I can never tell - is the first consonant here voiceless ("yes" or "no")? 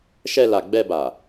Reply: yes